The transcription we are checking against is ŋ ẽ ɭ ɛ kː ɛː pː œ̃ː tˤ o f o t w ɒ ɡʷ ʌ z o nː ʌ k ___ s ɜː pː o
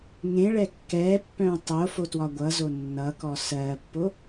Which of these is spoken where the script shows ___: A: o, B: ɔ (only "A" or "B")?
B